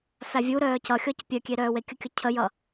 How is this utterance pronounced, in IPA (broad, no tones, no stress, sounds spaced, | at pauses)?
f æ vʲ u ɾ œː c ʌ xʲ ɔ c pʲ œ kʲ e ɾ œː w e kʲ ə kʲ ʌ cʰ ə j ʌ